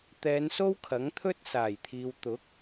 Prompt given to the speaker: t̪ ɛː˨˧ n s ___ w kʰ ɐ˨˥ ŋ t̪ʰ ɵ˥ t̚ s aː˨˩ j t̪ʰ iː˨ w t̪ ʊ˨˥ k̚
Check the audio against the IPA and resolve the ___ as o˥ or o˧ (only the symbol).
o˥